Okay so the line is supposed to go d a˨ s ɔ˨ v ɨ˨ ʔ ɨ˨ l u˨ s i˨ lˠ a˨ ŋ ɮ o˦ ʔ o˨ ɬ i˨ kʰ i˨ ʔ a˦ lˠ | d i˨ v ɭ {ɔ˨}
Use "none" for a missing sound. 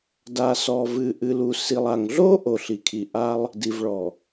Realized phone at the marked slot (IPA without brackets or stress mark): ɔ˨